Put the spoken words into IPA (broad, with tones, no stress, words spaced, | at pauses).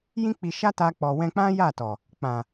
jĩ˦k͡pi˧ʃa˦ta˧ k͡pɔ˨wɛ̃˧k͡pã˦ ja˦˨tɔ˨ | k͡pã˨